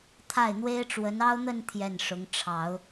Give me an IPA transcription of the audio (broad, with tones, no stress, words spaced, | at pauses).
t̪ʰa˥˩ɪ̯n̪we˥ɪ̯ʈ͡ʂwə˧˥n ɑ˥ʊ̯n̪ə˥˧n t̪ʰjɛ˥˩nʂʊ˧˥ŋ ʈ͡ʂʰɑ˨˩˦ʊ̯